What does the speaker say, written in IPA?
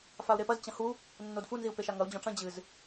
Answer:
fau̯ɾepɐz t͡ɕɐ̃hu | nːodfu nziu̯peʃaŋɐu̯ d͡ʑɔ̃ʈ͡ʂɐ̃ d͡ʑɨz

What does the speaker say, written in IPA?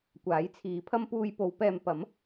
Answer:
kʷaː˨˥jt͡sʰiː˨˥pʰɐ˥m puː˧jpo˨˧w pɛː˨mpɐ˨˥m

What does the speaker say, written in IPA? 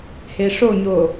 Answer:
heʂoɲo

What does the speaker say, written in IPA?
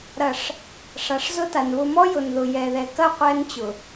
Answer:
ɾɐ˨ʂ | ʂa˨ʂzʊ˦ta˨n βʊ˨mɔ˦ jʊ˨nðʊ˨jɛ˨ðɛ˨ kɐ˦˨ qʷɛ˦nt͡ɕʊ˨

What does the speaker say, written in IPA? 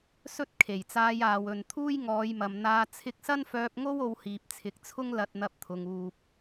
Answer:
sɵ˥t̚ kʰe˨˩jt͡saː˧j aː˨˧wɵ˨n t̪ʰuː˥jŋɔː˨˧jmɐ˨mn̪aː˧ t͡sʰɪ˧k̚sɐ˥nfœː˧p̚ŋo˥w o˧whiː˨p̚t͡sʰɪ˨˥k̚t͡sʰʊ˥ŋ lɐ˧t̚ n̪ɐ˧p̚t̪ʰʊ˨ŋ uː˨p̚

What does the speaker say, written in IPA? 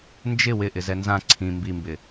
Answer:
nd͡ʒɪ wɪʔɪzɛ nzã ǀʰĩ mbimbɪ

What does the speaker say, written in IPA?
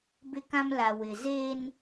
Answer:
bɪ˦kã˦m la˨wɪ˨ zeː˦n

